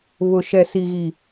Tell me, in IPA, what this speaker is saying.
β ʊ˨ ʃ ɛ˨ s i˨ ɣ i˨

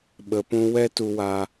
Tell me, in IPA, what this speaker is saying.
ɓ ə˨ p ũ˧ w ɛ˦ t u˧ w a˧

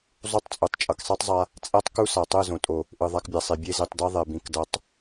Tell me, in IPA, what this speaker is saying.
zˤ u˦ tˤ t͡sʼ u˨ tˤ t͡ʃʼ ʌ˨ k sˤ e˦ tˤ zˤ a˧ | t͡sʼ ɛ˦ tˤ k u˦ s a˨ tˤ ɯ˦˨ z õ˨ tʼ o˨ | ʔ ɯ˨ ðˤ a˧ k bʲ a˨ sˤ i˨ bʲ e˧ z i˨ tˤ d ɛ˧ ðˤ e˨ b ĩ˨ k d ʌ˨˦ tˤ

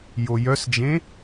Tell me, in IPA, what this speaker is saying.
j o j œ s d͡ʒ ẽ

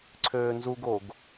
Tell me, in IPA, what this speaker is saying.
ǀʰ øː n z u ɡ o ɡ

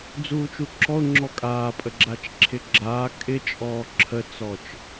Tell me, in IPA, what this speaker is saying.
d͡z uː t͡ʃ u ǁ ɔ ʊ̯ ŋ͡ǁ ɔ kʼ aː pʼ ə ɡ͡ǁ a t͡ʃ ǁʰ ɪ ɡ͡ǁ aː kʼ ɪ t͡ʃʼ ɔː ǁʰ ə t͡s ɔ t͡ʃ

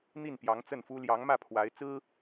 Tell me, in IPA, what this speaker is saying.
n̪ i˥˩ n p j ɑ˧˥ ŋ t͡s ə˥˩ n f u˥ l j ɑ˧˥ ŋ m ä˥˩ pʰ w a˧˥ ɪ̯ t͡s ɹ̩˥

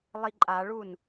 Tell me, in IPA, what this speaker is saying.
lˠ i ǃʼ a ɭ u n

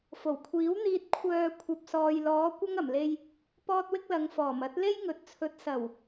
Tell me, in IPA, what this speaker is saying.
f o˨˩ w kʷʰ iː˨˥ w n̪ iː˧ t̚ kʷʰ œː˧ kʷʰ ɐ˨ p̚ s ɔː˨ j l ɔː˨˧ kʷ ɐ˥ ŋ ɐ˨˩ m l e˧ j | p ɔː˥ t̚ w ɪ˥ k̚ l ɐ˨˧ ŋ f ɔː˨˩ m ɐ˥ t̚ l e˥ j ŋ ɵ˨ t̚ t͡sʰ ɵ˨˥ t̚ s ɐ˨˩ w

